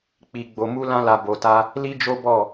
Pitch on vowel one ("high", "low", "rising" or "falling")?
low